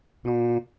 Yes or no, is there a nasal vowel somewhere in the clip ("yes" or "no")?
yes